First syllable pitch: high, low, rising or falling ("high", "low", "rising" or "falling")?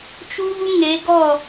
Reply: high